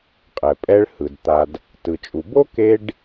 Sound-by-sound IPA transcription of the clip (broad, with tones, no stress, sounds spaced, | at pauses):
qʼ ɛ˩ pʼ ɛ˧ ɭ h ɯ˩ d t̪ a˩ d | t ɯ˩ t͡ʃʼ u˩ b o˥ k e˧ ɖ